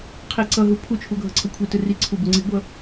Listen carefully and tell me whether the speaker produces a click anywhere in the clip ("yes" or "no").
yes